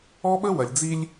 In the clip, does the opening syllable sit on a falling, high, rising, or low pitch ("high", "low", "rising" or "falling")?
high